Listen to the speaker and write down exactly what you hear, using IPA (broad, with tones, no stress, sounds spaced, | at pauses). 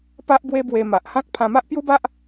p a˦ ʔ b w e˦ b w e˧ m a˨ ʔ h ã˦ k̚ pʰ ã˧ m a˦ ʔ p j u˦ b a˦ ʔ